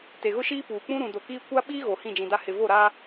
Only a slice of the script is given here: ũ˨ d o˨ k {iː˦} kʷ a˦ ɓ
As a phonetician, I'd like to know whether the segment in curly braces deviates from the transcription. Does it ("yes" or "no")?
no